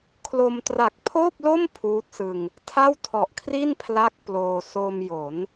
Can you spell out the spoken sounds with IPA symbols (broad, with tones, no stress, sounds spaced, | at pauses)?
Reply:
kʰ l o˧ m t r a˨˩ k̚ pʰ oː˥˩ p̚ l o˥˩ m pʰ uː˦˥ t̚ s ɯ˧ ŋ | tʰ a˥˩ w tʰ ɔ˨˩ ʔ kʰ r i˥˩ n pʰ l a˦˥ k̚ p l oː˧ s o˧ m j o˩˦ n